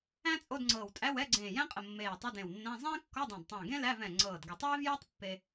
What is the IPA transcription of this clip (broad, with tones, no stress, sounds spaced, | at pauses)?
æ̃˥ t͡sʼ o˧˥˧ d ŋ͡ǀ ɤː˧˩ w tʼ æ˧˥˧ w ɛ˧˥˧ ɡ͡ǀ ẽː˧˩ j æ̃˥ qʼ ə˧˩ mː eː˧˩ j tˤ ə˧˥˧ d ẽ˧˩ w nː æ̃˧˥˧ zˤ ẽː˥ kː ɔ˧˥˧ dˤ æ̃˧˩ d tˤ æ̃˧˩ ɡ ẽ˥ l æ˧˥˧ v ɛ̃˧˩ ŋ͡ǀ ɤː˧˩ d ɡ ə˧˩ tˤ eː˥ v j ɛ˥ tˤ pː e˥